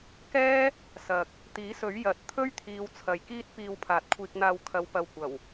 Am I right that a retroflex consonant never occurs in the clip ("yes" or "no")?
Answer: yes